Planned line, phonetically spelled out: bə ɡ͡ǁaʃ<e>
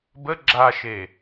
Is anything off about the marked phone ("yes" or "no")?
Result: no